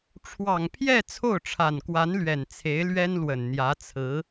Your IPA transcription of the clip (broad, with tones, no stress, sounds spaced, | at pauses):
ʈ͡ʂʰ w ɑ˨˩ ŋ pʰ j ɛ˥˧ t͡sʰ o˥˩ ʊ̯ ʈ͡ʂʰ a˨˩ n k w a˧˥ n l ɥ ɛ˨˩ n t͡sʰ e˧˥ ɪ̯ l ɥ ɛ˥ n l w ə˨˩ n n̪ j ä˧˥ t͡sʰ ɹ̩˧˥